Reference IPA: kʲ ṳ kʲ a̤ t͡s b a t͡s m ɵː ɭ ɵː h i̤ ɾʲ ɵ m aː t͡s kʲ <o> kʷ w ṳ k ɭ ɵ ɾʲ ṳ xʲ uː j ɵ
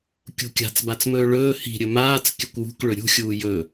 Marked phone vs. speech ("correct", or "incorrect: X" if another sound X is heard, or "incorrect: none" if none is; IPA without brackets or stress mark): incorrect: ɵ